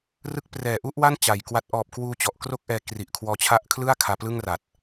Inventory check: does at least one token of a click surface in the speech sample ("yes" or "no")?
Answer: no